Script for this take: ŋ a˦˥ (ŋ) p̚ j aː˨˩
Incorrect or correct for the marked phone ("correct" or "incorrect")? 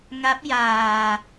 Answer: incorrect